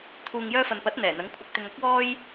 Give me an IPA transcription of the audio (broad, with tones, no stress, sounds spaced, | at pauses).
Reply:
t̪ʰ uː˨ ŋ j œː˧ f ɐ˨ n p ɐ˨˥ t̚ n̪ ɛː˨˩ n̪ ɐ˨˥ ŋ kʷʰ ɐ˧ k̚ t̪ ɪ˧ ŋ ɐ˥ k̚ w ɔː˥ j